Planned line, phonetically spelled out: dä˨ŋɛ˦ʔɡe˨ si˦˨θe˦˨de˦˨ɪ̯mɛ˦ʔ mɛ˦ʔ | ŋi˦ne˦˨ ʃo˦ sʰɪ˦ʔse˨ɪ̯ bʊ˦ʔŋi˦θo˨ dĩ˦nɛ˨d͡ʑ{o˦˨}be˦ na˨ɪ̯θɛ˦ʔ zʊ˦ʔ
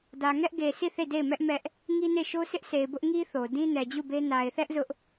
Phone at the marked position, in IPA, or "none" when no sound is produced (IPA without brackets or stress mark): u˦˨